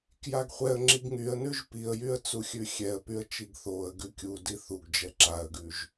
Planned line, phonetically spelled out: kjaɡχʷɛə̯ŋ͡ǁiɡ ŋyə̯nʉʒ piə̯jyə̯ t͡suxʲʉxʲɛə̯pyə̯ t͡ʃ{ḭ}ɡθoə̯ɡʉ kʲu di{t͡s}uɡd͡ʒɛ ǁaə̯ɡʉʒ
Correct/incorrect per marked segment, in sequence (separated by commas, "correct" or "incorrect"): incorrect, incorrect